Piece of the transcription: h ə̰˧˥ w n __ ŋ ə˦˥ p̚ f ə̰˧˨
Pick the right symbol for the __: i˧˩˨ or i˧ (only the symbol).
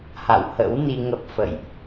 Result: i˧